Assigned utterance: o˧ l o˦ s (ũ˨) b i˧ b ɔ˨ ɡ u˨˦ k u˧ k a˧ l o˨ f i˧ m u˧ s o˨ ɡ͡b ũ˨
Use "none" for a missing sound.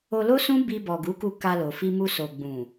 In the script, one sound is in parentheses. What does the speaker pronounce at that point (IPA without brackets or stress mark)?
ũ˦